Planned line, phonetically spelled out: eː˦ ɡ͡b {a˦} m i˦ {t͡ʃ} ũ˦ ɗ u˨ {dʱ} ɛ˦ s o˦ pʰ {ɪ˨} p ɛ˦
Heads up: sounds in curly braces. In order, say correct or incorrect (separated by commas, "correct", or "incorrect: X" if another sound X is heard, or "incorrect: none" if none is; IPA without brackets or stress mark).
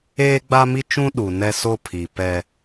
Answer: correct, correct, incorrect: n, incorrect: i˨